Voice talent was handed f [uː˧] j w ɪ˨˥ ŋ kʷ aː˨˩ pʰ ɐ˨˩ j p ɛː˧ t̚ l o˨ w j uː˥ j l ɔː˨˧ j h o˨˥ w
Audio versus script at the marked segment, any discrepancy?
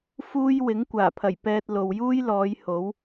yes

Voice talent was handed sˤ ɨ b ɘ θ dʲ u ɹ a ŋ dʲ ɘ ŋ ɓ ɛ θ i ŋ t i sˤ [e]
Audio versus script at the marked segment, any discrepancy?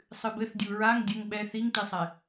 yes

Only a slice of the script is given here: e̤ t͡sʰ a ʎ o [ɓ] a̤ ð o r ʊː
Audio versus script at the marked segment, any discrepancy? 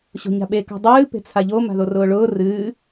yes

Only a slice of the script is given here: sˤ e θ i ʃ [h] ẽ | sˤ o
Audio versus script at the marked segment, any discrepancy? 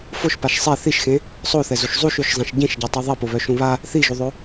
yes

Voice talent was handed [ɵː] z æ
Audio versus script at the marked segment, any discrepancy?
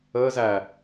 yes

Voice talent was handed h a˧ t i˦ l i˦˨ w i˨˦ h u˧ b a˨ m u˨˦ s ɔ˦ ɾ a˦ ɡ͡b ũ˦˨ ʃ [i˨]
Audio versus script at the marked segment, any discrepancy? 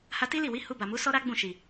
no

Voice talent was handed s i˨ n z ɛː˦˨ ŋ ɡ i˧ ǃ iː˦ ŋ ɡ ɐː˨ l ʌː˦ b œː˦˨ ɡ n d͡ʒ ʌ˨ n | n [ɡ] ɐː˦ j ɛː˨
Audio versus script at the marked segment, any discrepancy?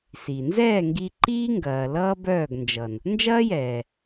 yes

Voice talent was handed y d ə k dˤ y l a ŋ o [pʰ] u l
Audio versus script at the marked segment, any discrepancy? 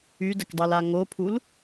no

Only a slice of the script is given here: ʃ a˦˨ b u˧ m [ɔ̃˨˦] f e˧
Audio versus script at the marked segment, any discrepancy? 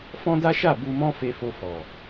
yes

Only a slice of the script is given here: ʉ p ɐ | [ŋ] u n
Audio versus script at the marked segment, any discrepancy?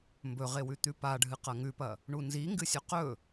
yes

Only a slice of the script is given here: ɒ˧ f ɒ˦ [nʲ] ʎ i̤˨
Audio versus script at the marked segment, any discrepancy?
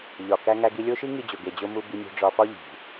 yes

